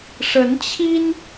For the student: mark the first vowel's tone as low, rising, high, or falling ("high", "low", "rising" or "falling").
rising